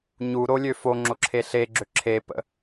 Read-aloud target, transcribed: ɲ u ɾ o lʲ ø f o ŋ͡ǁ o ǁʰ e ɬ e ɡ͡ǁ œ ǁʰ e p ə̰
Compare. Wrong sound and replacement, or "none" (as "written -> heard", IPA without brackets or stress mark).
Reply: œ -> ø